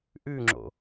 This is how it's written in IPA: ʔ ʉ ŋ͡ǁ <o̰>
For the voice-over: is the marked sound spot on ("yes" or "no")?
yes